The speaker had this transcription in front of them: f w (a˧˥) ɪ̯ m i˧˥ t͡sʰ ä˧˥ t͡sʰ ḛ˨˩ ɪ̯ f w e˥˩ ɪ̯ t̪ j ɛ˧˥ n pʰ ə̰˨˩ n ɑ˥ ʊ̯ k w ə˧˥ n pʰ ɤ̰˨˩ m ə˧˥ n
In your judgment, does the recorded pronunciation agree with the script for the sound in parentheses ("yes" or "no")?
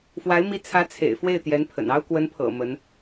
yes